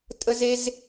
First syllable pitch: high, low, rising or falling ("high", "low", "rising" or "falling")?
high